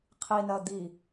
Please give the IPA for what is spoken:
qʰ i n ɐː d̪ i

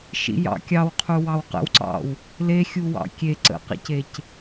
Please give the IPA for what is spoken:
ʃ ḭ j ɑ̰ kʲ ɑ w qʰ u w ɑ w q ə̰ w ǀ ɑ̰ w | l e xʲ u w ɑ̰ kʲ e ǀ ə̰ q ḛ c e c

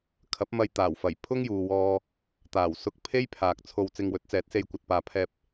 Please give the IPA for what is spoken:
kʰ ɐ˨˥ p̚ m ɐ˧ j t̪ aː˨˩ w f ɐ˨˩ j pʰ ʊ˥ ŋ j uː˨ w ɔː˧ | t̪ aː˨˩ w s ʊ˧ k̚ pʰ e˥ j pʰ aː˨ k̚ t͡sʰ o˧ w t͡s ɪ˧ ŋ w ɵ˨˥ t̚ t͡s ɛː˨˥ t̚ s e˧ j kʷ ɐ˨ t̚ p aː˨ pʰ ɛː˧ p̚

